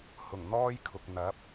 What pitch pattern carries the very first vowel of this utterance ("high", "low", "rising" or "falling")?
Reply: low